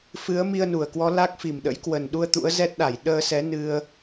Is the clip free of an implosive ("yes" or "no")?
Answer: no